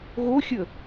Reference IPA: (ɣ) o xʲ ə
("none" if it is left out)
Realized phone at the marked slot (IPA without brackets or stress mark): ɣ